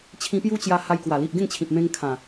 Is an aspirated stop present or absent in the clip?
present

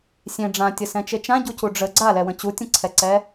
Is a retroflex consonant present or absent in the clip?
present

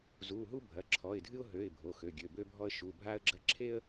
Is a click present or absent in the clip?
present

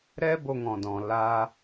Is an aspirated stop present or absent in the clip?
absent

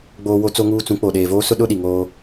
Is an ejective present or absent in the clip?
absent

